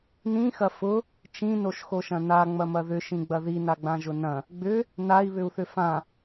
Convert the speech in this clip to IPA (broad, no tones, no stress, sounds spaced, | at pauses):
n ĩ x ɐ f ʊ | t͡ʃ ĩ n o ʃ x o ʃ ɐ̃ n a ŋ͡m ɐ m ɐ ð ʏ ʃ ĩ ɡ͡b ɐ ð i n a ɡ͡b ã ʒ ʊ n ɐ̃ | ɡ͡b ʏ | n a i̯ β ʏ u̯ θ ʏ f ã